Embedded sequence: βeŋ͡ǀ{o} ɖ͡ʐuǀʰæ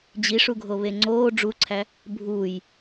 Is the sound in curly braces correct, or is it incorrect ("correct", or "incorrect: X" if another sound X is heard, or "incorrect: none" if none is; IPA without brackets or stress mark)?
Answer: incorrect: oː